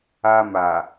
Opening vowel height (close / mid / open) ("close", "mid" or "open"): open